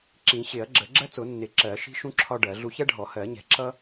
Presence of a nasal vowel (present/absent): present